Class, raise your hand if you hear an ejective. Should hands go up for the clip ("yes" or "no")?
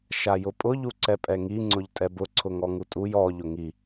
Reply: yes